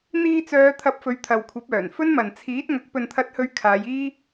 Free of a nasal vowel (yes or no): yes